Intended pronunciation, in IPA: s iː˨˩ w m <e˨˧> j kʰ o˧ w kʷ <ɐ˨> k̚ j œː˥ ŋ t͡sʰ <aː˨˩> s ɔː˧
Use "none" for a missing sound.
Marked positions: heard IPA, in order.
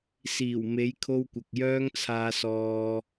e˨˧, ɐ˨, aː˧

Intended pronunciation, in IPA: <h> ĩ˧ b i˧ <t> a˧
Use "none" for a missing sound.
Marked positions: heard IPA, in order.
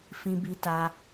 f, t

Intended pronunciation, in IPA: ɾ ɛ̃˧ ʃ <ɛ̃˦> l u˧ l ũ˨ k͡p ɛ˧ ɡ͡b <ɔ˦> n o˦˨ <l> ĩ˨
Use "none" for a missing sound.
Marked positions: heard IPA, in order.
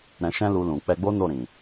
ɛ̃˦, o˦, ɾ

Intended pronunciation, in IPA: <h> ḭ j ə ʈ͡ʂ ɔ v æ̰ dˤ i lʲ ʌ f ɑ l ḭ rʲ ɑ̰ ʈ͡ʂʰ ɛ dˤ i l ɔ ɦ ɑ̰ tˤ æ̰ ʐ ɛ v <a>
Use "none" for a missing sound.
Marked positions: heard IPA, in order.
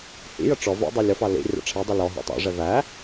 h, æ

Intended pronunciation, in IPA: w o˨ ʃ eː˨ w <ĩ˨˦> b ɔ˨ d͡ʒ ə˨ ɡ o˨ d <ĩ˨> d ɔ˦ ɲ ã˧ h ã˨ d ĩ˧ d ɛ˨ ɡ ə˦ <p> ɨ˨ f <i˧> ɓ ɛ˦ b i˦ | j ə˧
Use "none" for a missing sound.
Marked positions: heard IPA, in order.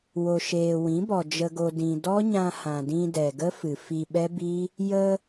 ĩ˨˦, ĩ˨, f, i˧

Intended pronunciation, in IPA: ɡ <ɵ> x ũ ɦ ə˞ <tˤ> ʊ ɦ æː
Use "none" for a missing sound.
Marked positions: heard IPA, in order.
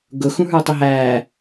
ʊ, tˤ

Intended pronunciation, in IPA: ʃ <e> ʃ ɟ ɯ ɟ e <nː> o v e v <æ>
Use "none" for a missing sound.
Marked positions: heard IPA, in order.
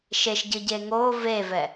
e, ŋ, ɛ

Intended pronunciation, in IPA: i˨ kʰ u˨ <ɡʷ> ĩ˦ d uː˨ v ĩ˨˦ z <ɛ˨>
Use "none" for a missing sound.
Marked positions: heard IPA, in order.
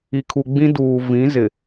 ɡ͡b, ɪ˨

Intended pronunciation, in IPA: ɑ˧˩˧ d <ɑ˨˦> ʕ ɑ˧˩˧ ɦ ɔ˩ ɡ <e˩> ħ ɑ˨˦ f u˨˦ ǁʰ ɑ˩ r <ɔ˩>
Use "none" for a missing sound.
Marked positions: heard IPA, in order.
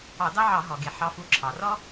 ɑ˥, e˩, ɔ˥

